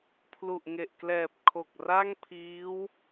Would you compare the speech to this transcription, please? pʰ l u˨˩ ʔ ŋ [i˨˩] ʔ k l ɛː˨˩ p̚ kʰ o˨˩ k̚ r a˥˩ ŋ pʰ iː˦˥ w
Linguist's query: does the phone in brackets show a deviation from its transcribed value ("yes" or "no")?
yes